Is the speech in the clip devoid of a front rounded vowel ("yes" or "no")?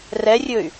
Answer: no